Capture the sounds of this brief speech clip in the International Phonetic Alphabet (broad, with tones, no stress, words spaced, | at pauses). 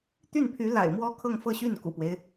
t̪y˥˩npʰy˧˥la̰˨˩ɪ̯ mwɔ˥kʰɤ˥˧ŋfɤ˥˧ɕy˥˩n kṵ˨˩pwe˦ɪ̯